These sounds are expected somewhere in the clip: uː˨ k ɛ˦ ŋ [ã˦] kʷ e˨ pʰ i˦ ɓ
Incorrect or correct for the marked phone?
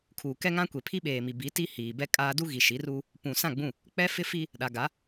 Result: correct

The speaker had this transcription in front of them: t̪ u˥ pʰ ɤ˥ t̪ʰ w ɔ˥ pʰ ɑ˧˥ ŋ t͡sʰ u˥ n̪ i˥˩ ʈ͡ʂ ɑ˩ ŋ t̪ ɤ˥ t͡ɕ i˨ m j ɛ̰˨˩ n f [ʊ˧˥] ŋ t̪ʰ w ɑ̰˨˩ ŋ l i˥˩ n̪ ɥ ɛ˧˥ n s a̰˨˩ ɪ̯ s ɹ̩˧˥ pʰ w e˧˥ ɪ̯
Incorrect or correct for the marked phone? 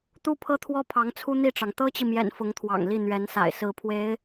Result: correct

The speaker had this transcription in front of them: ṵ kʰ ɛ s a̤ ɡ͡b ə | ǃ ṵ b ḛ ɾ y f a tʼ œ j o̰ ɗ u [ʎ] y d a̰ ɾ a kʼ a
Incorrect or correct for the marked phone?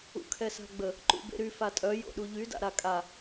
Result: correct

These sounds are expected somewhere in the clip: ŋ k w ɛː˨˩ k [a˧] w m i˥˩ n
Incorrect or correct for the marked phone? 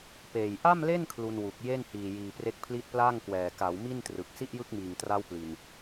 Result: incorrect: a˩˦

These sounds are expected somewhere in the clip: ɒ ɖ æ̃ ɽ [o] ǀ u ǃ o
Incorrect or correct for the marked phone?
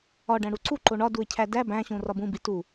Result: incorrect: u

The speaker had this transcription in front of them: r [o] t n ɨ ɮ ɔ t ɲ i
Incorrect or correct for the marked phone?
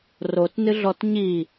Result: correct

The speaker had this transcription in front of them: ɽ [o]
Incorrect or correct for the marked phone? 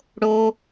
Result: correct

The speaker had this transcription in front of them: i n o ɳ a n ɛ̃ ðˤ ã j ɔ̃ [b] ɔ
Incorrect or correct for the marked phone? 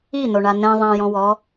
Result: incorrect: w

